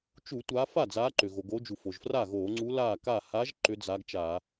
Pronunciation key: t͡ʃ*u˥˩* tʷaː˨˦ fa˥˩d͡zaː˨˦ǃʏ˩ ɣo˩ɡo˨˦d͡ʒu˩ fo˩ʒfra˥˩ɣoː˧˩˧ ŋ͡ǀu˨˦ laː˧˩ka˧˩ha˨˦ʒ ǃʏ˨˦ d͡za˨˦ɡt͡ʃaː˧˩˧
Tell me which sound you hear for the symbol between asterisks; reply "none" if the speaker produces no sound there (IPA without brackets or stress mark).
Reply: u˧˩˧